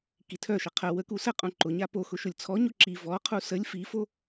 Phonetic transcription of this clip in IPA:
k i tʰ œ ʃ ə qʰ ə w ə k u s ə qʼ ũ ǃ ʊ ɲ a p o x ʊ ʃ ʊ lʲ t͡sʰ ɔ ɲ o ǁ i v ɔ qʰ u s ə lʲ f i f o

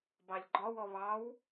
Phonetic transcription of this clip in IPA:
b ɑ lʲ ɡ͡ǃ ɒ w ɔ β ɑ w

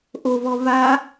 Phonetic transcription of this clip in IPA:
ʔ o v ɔ v a

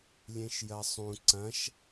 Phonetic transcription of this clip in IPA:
lʲ ẽ ʃ j ɐ sˤ ũ ǀ ɐ̃ ʃ

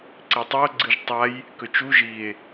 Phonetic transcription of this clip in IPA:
ǀ e tˤ ɨ o̯ ɡ͡ǀ ɨ ʒ tˤ a j | k ɵ t͡ʃ u ʒ i e̯

